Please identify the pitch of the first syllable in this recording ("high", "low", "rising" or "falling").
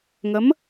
rising